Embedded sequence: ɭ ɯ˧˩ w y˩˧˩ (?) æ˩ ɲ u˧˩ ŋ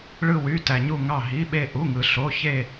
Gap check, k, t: t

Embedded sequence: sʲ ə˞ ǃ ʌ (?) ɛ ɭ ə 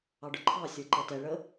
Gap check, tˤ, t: t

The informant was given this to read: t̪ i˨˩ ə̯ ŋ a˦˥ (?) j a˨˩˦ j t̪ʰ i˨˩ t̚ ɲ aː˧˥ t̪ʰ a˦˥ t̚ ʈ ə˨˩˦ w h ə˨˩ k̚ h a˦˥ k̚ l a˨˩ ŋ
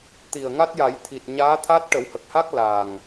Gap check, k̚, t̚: t̚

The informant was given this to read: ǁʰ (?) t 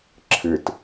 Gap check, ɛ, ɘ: ɘ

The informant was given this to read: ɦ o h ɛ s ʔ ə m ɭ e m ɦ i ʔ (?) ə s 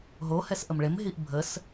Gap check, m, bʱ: bʱ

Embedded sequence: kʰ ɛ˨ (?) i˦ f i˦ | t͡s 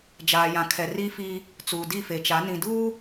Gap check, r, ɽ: r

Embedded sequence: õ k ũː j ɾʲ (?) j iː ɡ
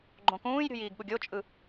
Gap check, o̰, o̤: o̤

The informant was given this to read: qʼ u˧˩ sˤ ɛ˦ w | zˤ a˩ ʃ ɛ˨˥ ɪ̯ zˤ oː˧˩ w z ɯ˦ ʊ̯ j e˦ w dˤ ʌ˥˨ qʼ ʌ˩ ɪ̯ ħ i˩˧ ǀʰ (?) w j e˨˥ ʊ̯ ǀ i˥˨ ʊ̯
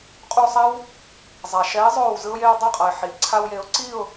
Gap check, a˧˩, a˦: a˦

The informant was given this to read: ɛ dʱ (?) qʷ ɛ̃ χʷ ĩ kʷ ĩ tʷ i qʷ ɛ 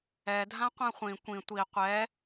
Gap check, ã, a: ã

